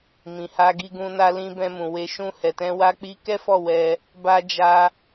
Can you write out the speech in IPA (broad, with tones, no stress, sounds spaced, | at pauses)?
m ĩ˨ h a˧ ɡ i˧ ɡ ũ˧ n a˧ l ĩ˧ b ɛ̃˧ m ũ˨ w e˨ ʃ ũ˧ h ɛ˨ t ɛ̃˧ w a˧ k͡p i˧ k ɛ˦ f ɔ˦˨ w ɛ˧ | b a˧ d͡ʒ a˧